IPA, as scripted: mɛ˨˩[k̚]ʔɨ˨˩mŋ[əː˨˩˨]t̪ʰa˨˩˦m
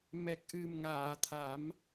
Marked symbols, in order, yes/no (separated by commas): yes, no